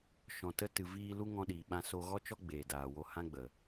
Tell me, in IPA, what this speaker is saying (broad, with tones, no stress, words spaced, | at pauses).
ʃɔ̃˨tə˧tɨ˨viː˧ lu˦ ŋɔ̃˧ɗiː˨ɓã˧ so˧ɣɔ˦t͡ʃɔ˦ ɡ͡beː˨daː˨wo˧ hã˦ɡ͡bə˨